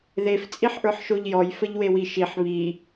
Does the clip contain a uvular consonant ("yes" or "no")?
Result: no